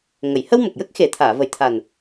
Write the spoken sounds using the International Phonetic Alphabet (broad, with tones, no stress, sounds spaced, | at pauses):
ŋ ə˨˩˨ j h ə˧ w m ə˨˩ k̚ j ə˦˥ k̚ x e˨˩ t̪ʰ aː˨˩˨ v ə˨˩ j t̪ʰ a˨˩ n